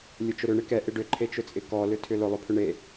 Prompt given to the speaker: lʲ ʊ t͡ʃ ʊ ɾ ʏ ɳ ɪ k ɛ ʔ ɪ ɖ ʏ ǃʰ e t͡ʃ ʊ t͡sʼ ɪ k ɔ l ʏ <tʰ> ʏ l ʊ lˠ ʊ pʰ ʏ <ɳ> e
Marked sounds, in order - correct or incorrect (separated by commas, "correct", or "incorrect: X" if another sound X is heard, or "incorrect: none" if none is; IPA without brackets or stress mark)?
correct, correct